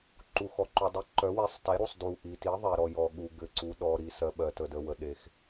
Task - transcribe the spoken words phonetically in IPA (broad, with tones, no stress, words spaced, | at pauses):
ǃu˩xɔ˩ǃu˩dˤi˩˥ ǃœ˩˥we˩˥sˤte˩˥ ɾu˩sˤdu˩ ʔi˩ti˩˥ðˤe˩ɾɔ˩ jɔ˩ ɠu˩ɡɘ˩ ǀu˩ɗɔ˩ɾi˩ sɜ˩ ɓɜ˩tə˩də˩ wə˩ɗe˩x